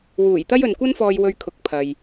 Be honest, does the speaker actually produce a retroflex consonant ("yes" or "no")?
no